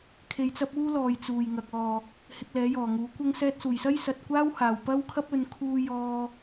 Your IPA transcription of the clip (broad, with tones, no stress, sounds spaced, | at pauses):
kʰ e˧ j t͡s ɐ˥ p̚ uː˥ l ɔː˨ j t͡s uː˨˩ j ŋ ɐ˨ k̚ ɔː˨ | h ɪ˧ k̚ l ɛː˨˥ j ɔː˨˩ ŋ uː˨˥ kʷ ɐ˥ ŋ s ɛː˧ t̚ s uː˨˩ j s ɐ˥ j s ɐ˨ t̚ kʷ aː˥ w h aː˨˩ w p ɐ˥ w kʰ ɐ˥ p̚ ɵ˨˧ n kʰ uː˧ j ɔː˧